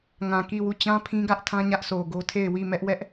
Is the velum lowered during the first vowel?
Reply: yes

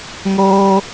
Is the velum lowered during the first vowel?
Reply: no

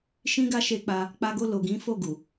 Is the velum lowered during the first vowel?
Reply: yes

